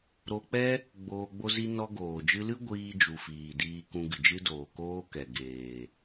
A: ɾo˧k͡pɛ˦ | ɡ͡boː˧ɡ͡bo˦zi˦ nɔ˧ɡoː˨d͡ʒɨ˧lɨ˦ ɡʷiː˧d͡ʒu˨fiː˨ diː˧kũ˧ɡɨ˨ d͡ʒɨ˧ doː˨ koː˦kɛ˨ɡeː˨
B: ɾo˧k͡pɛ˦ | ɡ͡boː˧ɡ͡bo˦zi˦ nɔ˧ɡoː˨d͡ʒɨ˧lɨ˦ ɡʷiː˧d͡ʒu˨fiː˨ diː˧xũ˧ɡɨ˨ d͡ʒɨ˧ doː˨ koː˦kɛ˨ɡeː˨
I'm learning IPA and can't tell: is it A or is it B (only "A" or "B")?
A